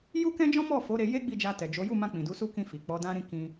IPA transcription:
ju˦kɛ̃˦d͡ʒɔ̃˦ mɔ˦˨fo˨˦ ɾe˧ je˦ ɡ͡bi˦˨d͡ʒa˧tɛ˨d͡ʒo˨˦ ju˦˨mã˧ k͡pĩ˨du˨˦su˦ kĩ˧fi˨ k͡pɔ˨˦dã˦ɾĩ˦ kĩ˧

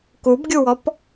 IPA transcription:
kubɡʲuwɔp

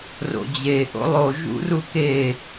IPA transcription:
ro̰d͡ʑe ʔo̰lˠo ʒṵruke

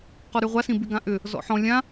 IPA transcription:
qɔɾyʁʷa sĩbyɡãʔʏ | zɔ̰ħɔ̃ lʲã

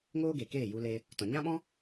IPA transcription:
ŋoː˦ɡe˨ keː˦˨ju˧le˧ | tɔ̃˨ ɲã˦ɓɔ̃˦

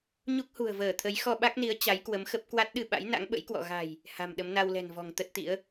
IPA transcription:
ɲu˦˥k̚hṳ˨˩ə̯vəː˧˩t̪ʰə˨˦j xɔ˧ɓa˦˥k̚ni˨˦ə̯ t͡ɕa˨˦jkwə˨˦mxə˦˥p̚ kwa˦˥t̚ɗɨ˧ɓa̰˧˥j na̰˧˥ŋɓə̰˧˥jkwɔ̰˧˨ ɣa̤˨˩j | ha̤˨˩mɗə˨˦m na˧wlɛ̤˨˩nvɔ̤˨˩ŋ t̪ə˦˥t̚t̪ḭ˧˥ə̯

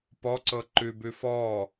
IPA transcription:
pɔǀɤ ǃʉbʉ fɔ

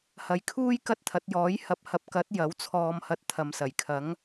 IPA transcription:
hɐ˨˧jkʰuː˥j kɐ˥t̚t̪ʰɐ˨˥t̚jɔː˨˥j hɐ˨p̚hɐ˨p̚kɐ˨˥t̚ jɐ˨˥wt͡sʰɔː˧mhɐ˧t̚ t̪ʰɐ˨msɐ˨˩jkʰɐ˨˥ŋ

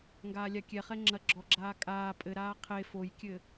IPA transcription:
ŋɡaːlʲakʲɛχɛ ŋ͡ǁɐ ɡ͡ǁɔɡ͡ǁaː kʼaː pʼɘɾaː qʰe fojkʲɘ

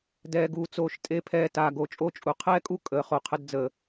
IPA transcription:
dɛː˨ɡuː˨t͡soː˨ʃ tʼe˨pʰɛː˨ taː˨ɡo˨t͡ʃʼo˦t͡ʃʼu˨ qʰɛː˦kʼu˦ kʼəː˨ χo˨qʰə˧dd͡zəː˨

